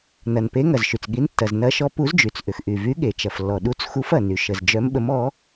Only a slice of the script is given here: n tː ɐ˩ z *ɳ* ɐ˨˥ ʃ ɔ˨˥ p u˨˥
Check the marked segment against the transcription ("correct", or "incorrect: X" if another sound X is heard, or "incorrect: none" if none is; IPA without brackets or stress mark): incorrect: n